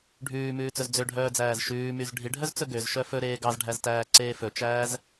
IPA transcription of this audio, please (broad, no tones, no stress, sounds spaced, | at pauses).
ɖʱ ʉː m ʉː t͡s ɵ z d͡z ø ɖʱ œː d͡z æː z ʃ ʉː m y z ɖʱ i ɖʱ œ z t͡s ɵ ɡ ø z ʃ œ f ɵ ɾ eː ɡ ɑ z ɖʱ æ z t æː ǀ eː f ɵ t͡ʃ æː z